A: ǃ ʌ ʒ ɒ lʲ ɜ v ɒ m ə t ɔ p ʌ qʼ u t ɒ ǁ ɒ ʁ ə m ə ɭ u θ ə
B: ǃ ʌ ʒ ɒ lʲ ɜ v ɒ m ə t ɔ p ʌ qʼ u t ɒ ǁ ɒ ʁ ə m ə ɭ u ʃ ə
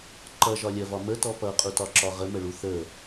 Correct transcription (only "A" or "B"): A